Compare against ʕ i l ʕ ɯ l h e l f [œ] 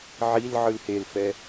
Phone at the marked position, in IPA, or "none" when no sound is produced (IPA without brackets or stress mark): ɛ